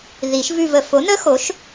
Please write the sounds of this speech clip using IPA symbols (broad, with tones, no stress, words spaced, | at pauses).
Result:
ði˨˩˦ʃvʉ˦˨v ə˨ fo˨˥nə˦˥xo˨˥ʃ